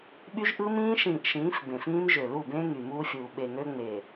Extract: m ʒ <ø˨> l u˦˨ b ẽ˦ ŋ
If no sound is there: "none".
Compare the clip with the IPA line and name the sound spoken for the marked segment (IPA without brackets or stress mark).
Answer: ø˨